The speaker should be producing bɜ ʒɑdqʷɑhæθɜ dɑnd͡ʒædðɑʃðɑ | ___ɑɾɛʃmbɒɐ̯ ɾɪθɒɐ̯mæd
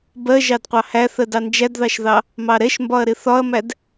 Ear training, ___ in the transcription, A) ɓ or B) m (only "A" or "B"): B